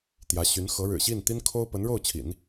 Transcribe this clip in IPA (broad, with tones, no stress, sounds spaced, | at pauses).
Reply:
t̪ j ä˧˥ ɕ y˧˥ n x ɤ˧˥ ɻ ɻ̩˨˩ ɕ i˥˩ n t̪ i˥ n kʰ o˥ ʊ̯ p ə˧˥ n ɻ o˥˩ ʊ̯ t͡ɕʰ ḭ˨˩˦ n